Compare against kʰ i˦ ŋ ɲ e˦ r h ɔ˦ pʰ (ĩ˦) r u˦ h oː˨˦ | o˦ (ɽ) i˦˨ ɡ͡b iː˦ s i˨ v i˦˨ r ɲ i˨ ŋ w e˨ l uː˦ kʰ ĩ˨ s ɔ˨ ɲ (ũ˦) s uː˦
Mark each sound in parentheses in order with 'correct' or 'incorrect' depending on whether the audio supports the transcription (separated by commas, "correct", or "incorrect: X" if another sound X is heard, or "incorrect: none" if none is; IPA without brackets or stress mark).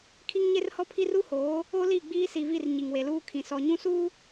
incorrect: i˦, incorrect: l, correct